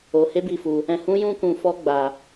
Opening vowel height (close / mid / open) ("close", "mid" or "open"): mid